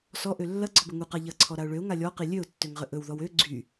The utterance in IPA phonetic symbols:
s ɔ ʔ ø lː ɐ ɡ͡ǀ ɔ b ɵ ŋ u q a ʎ ɐ ǀʰ ɔ ɾ a ʊ̯ ɭ ø ʊ̯ ŋ a lʲ ɔ q i lʲ ø ʊ̯ tː ø ŋ ʁ ə ʔ ɵ w ð ɔ w ø ɡ͡ǀ y

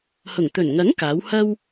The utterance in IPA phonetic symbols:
h ʊ˨˩ ŋ t̪ ɵ˨˩ n ŋ ɐ˨˥ ŋ k aː˨˥ w h ɐ˥ w

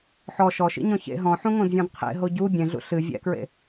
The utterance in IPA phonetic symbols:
ħ ɔ ʃ ɔ ʃ ḭ ɲ ɔ̃ ç ḛ ɦ ɔ̃ ħ ũ ŋ õ d vʲ ɔ̃ d qʰ ḛ ɦ o ɟ u bʲ ẽ ɮ ṵ ɬ ɨ vʲ ɛ̰ k ɹ ḛ

